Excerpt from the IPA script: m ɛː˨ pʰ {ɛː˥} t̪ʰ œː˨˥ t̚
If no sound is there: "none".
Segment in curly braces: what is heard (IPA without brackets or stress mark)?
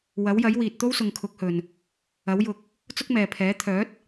ɛː˨˥